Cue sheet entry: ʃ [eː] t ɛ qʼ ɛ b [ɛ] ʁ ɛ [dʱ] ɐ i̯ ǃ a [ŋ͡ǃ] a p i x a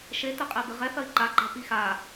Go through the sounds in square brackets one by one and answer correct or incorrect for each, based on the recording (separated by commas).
incorrect, incorrect, incorrect, incorrect